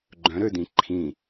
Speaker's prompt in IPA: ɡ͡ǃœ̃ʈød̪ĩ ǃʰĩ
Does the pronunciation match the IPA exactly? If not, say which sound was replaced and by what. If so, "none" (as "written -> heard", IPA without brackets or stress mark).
ʈ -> ɾ